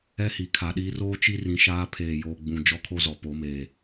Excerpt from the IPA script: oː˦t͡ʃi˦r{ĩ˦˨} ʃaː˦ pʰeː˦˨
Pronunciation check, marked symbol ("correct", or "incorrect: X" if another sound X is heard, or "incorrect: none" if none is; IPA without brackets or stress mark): incorrect: ĩ˨